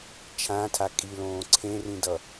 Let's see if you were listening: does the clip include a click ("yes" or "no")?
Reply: yes